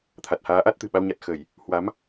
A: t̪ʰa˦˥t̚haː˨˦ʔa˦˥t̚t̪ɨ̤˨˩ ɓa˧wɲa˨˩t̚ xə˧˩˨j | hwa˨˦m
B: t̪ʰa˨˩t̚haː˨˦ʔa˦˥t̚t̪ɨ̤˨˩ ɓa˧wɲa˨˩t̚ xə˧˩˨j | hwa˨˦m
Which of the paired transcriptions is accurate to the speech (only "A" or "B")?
B